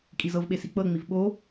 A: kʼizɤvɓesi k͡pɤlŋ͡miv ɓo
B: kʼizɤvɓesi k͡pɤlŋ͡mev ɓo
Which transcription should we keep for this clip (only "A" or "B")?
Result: A